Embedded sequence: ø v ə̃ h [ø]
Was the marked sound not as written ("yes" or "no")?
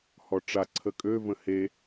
yes